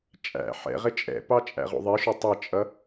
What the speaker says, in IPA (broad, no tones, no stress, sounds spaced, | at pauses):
t͡ʃʼ æ̰ ħ ɛ̰ ʁ ɪ t͡ʃʼ ɛ̰ p ɑ t͡ʃʼ æ̰ ʁ ṵ ðˤ i ʃ u tˤ ɪ t͡ʃʼ ʌ